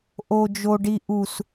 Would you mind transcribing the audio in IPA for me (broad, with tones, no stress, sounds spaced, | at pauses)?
ʔ o˦ d͡ʒ o˦ ɖ i˦ ʔ u˦ s